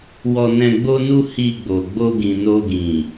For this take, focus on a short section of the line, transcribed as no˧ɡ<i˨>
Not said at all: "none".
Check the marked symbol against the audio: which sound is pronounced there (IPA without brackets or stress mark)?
ĩ˨